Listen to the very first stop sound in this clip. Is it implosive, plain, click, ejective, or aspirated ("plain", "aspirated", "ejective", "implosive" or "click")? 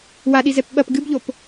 implosive